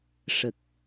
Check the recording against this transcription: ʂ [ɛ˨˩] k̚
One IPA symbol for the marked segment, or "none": ə˨˩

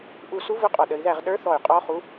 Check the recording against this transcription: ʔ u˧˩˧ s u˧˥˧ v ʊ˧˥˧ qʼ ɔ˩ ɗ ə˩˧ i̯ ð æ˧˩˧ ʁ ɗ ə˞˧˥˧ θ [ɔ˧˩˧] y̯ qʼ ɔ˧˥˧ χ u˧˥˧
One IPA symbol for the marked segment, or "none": ɔ˧˩˧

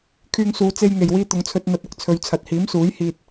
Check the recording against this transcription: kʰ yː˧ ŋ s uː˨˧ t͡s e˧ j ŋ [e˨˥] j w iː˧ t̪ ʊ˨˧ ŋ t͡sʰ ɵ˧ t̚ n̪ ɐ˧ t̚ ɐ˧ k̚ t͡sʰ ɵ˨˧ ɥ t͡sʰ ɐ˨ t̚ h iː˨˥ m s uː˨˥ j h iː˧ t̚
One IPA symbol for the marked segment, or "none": e˨˩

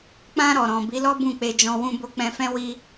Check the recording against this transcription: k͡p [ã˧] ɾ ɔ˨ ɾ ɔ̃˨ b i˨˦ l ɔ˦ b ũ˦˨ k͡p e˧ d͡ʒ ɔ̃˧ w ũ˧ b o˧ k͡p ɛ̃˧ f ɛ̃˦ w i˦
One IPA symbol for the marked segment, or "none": ã˧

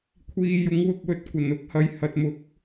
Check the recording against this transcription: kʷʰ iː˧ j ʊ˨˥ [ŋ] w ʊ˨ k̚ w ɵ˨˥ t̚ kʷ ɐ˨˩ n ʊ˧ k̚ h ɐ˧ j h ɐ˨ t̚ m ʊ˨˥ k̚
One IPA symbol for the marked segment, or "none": ŋ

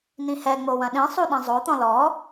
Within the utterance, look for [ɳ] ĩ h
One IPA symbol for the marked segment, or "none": n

